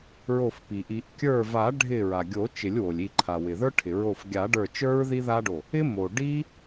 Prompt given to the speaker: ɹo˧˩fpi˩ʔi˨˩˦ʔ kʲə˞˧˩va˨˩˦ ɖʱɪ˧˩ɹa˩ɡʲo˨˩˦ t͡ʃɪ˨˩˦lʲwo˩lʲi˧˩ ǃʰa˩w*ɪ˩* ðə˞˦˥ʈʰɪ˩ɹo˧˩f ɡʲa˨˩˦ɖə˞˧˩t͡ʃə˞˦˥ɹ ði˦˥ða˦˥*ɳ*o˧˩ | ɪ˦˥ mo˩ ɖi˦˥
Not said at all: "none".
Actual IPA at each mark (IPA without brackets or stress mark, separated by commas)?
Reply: ɪ˩, ɖ